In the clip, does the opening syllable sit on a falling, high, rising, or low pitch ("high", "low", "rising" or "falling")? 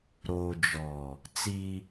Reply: low